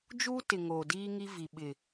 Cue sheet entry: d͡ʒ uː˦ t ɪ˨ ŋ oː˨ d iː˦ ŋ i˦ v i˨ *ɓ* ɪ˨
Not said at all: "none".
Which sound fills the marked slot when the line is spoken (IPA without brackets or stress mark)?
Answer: ɓ